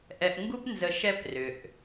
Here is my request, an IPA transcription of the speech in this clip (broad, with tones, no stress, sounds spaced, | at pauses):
ʔ ɛ˧ ʔ ŋ ɡ u˥ p n z ə˧ ʃ ɛ˥ p r ʏ˩ ʔ